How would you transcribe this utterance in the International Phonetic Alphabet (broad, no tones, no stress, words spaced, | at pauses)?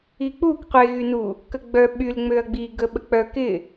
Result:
ik͡puk qʷe ɣynu | kəɡ͡bœ ɓyl ŋ͡møɐ̯ɡ͡bi ɡəɓək͡pœk ɪ